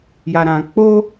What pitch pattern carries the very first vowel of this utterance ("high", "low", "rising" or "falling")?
low